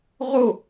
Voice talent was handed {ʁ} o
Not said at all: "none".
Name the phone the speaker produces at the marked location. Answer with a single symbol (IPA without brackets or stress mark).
ʁ